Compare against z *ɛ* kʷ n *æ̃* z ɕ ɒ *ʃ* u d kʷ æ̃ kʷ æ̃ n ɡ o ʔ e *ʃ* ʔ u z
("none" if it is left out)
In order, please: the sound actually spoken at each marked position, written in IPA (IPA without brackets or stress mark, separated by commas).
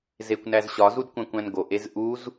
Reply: e, æ, z, z